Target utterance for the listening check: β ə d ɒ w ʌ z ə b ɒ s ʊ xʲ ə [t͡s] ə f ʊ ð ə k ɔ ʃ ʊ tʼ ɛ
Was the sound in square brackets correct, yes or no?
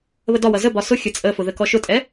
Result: no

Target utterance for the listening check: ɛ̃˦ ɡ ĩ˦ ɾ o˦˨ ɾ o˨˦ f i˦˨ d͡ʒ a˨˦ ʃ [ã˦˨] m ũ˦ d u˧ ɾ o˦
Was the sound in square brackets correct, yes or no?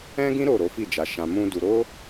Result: no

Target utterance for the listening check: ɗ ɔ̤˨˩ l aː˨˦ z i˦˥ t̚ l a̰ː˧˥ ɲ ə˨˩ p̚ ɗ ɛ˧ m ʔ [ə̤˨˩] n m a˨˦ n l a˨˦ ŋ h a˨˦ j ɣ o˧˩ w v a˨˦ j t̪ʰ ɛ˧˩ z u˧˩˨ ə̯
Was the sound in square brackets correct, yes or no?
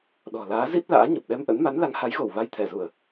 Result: no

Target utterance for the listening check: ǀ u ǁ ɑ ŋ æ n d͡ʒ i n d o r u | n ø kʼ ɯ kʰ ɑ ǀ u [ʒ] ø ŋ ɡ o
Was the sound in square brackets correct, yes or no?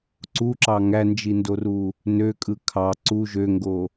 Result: yes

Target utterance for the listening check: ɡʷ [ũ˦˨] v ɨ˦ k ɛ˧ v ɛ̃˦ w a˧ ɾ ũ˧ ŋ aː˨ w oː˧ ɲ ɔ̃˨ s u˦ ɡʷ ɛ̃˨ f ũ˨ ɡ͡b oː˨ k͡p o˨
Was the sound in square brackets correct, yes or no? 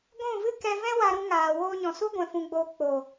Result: yes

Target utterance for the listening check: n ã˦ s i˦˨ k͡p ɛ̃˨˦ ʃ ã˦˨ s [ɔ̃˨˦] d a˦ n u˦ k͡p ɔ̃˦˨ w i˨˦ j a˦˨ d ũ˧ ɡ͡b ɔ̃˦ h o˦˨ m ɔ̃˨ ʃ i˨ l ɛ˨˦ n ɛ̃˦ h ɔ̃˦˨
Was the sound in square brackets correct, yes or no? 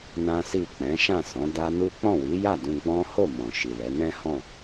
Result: yes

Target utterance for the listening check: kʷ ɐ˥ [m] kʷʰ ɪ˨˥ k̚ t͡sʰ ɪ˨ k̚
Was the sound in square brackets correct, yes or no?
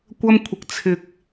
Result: yes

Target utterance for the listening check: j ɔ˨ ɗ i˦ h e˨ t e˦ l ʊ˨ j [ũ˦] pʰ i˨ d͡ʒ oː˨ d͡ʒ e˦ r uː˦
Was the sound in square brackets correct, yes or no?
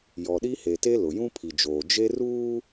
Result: yes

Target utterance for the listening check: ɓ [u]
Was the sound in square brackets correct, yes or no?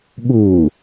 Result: yes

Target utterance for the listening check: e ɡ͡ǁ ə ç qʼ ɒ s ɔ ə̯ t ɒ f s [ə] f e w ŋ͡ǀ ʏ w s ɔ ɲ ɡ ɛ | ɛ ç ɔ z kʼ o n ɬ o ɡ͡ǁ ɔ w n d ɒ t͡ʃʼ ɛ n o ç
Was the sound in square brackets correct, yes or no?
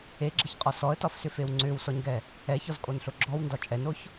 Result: no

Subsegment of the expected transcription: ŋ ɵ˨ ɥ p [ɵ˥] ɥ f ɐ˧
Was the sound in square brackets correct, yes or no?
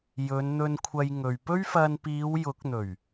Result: yes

